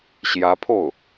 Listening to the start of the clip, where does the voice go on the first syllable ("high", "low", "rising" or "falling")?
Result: rising